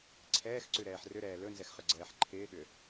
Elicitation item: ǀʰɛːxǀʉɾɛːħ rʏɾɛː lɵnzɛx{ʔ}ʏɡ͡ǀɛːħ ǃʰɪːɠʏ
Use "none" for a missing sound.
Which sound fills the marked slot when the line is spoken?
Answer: χ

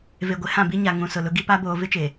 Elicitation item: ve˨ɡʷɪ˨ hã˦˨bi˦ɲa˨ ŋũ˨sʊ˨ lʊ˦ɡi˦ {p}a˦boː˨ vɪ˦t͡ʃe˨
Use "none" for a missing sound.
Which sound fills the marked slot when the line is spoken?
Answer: p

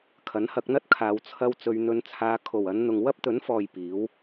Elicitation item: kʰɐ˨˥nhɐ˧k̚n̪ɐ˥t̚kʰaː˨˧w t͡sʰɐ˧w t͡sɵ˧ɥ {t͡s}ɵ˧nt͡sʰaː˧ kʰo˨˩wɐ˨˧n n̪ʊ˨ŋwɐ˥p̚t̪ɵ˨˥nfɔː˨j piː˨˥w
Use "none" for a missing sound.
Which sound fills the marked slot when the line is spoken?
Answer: n̪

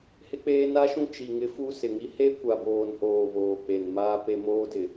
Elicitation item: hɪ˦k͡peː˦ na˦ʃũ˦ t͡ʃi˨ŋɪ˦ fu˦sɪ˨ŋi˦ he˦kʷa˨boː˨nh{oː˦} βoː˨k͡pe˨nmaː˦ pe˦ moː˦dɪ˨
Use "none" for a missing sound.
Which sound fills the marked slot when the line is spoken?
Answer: oː˨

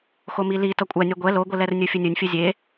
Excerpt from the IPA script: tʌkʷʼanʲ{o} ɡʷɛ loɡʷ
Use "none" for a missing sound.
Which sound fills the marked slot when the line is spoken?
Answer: o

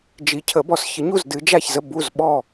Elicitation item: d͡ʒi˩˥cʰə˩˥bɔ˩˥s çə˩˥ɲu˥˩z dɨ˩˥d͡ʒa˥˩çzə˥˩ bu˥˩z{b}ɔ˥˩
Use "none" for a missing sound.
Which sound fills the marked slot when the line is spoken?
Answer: ɓ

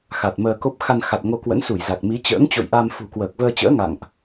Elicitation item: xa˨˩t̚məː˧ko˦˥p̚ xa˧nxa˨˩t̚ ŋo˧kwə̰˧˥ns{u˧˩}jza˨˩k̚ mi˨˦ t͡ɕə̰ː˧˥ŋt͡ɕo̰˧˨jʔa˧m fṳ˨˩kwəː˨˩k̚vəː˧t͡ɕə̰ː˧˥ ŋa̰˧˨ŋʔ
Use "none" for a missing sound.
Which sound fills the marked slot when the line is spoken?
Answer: u˧˩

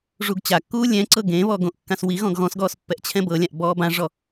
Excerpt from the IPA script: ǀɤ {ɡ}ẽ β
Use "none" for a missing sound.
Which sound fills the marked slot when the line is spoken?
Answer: ɡ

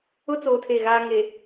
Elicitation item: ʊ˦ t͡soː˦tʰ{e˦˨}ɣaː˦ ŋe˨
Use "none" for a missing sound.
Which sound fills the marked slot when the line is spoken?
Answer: e˦˨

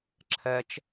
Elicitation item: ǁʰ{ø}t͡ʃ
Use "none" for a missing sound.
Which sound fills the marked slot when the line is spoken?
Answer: ɛ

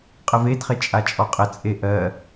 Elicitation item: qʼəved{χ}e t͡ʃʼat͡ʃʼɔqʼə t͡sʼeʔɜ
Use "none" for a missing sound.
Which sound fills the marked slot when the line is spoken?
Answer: χ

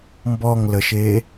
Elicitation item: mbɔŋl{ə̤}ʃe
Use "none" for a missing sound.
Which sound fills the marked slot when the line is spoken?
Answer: ə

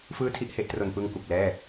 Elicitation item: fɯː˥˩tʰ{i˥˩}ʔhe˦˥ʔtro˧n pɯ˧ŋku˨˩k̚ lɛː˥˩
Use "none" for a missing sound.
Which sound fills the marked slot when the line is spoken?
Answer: i˥˩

